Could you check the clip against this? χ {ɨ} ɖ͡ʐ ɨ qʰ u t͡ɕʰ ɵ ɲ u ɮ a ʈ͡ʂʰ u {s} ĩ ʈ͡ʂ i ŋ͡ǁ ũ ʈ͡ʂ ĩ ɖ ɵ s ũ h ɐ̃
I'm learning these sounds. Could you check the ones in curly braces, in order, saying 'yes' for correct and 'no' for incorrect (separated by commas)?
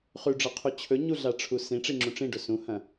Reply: no, yes